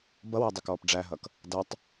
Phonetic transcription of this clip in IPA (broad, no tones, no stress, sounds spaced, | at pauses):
b ʌ w ɛ dˤ ɪ k ɔː p ɖ͡ʐ æ ɦ ʌ k | d ʌ tˤ